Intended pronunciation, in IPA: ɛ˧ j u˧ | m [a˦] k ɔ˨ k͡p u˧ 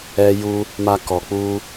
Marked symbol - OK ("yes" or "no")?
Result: no